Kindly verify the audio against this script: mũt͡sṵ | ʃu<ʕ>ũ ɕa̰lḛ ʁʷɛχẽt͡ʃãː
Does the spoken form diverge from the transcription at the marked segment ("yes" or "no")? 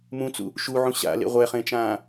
no